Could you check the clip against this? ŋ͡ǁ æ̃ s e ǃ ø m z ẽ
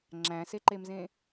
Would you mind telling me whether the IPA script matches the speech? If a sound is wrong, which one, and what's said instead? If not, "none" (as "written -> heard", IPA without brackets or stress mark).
ø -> e